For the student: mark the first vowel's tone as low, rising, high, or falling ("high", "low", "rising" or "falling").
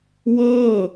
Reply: falling